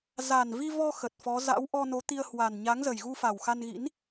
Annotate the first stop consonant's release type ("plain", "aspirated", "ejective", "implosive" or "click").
plain